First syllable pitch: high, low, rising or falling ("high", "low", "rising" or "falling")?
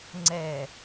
low